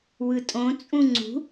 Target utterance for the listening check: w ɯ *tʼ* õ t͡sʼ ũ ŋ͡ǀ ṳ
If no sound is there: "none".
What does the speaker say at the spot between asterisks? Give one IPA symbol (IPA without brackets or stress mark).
tʼ